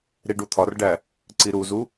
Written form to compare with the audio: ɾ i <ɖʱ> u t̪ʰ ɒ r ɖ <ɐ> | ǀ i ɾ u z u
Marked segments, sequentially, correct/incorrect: incorrect, incorrect

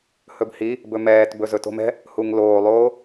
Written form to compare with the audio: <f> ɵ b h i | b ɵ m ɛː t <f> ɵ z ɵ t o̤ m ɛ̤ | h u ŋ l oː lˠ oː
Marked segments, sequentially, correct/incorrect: incorrect, incorrect

